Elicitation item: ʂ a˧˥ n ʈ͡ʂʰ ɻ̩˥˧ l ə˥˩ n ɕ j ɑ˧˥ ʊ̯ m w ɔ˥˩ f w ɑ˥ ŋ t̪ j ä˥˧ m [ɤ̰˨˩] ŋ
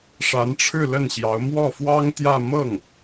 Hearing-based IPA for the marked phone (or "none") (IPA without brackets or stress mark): ɤ˥˩